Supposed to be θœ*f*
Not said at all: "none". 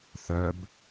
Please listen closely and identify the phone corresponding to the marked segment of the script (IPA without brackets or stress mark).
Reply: b